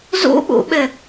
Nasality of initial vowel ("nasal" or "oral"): oral